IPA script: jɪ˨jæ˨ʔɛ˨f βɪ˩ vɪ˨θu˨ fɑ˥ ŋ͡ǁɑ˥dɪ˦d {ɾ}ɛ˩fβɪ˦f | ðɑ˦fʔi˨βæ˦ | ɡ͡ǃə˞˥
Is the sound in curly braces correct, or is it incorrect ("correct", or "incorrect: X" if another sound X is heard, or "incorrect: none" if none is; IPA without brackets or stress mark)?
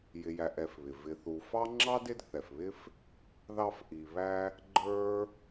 incorrect: θ